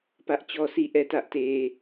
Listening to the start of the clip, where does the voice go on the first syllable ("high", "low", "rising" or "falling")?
high